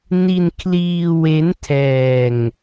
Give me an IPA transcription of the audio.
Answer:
n i˧ n kʰ l iː˧ w e˦˥ n tʰ ɛː˧ ŋ

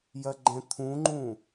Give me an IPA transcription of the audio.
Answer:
j ɐ ɡ͡ǃ ɛ̃ t̪ʰ ũ ŋ͡ǃ ũ

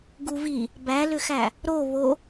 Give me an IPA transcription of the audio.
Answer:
ɡ u v i | b æ l ʏ x æ | ɾ o β o

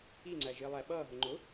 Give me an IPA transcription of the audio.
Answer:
i ŋ͡ǀ æ ʒ ɪː lˠ æ ɓ ʌː ɦ ʊ ŋ͡ǃ ʊ

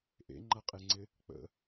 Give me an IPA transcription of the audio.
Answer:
ʔ ḛ ŋ͡ǃ a qʼ e ŋ͡ǀ ɪ | k͡p ə̰

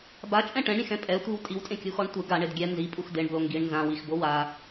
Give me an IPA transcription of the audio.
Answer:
b a t͡ʃʼ ɛ̃ ʈ ɛ̃ ɳ ɾʲ ẽ x ɛ̃ pʼ ɛ tʷ i w tʼ i w tʼ ẽ kʲ u x ɔ ɳ tʷ ɪ ɡ a ɳ e d ɡʲ ɛ n z i pʼ u x d e ɳ b l o ŋ ɡ i ɳ n z ã w i x b o w a

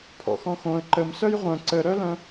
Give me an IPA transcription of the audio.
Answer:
pʰ ɔ̰ x ɔ̃ x õ ə̯ ǃ ə m s œ j ʁʷ œ̃ ǀ ə ɾ œ l œ̃

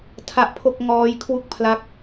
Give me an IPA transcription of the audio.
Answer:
tʰ a˦˥ ʔ pʰ o˥˩ k̚ ŋ ɔː˦˥ j kʰ w u˥˩ k̚ pʰ l a˦˥ k̚

